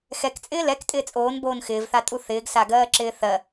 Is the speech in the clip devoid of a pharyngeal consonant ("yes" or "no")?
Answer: yes